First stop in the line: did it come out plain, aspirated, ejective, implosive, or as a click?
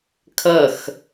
aspirated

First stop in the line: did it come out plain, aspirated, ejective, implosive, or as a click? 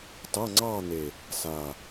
plain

